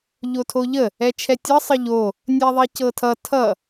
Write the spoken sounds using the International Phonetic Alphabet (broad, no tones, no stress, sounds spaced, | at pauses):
ʎ o tʰ o ʎ ə | ɛ t͡ʃʰ ɛ tʲ ʌ sˤ ə ʎ o | nʲ ɛ ðˤ i c ɤ tʰ ʌ tʰ ʌ